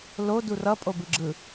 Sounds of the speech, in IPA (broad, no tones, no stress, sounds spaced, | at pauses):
l o d u r ʌ pʼ o b ɯ ɡ͡ǁ ɯ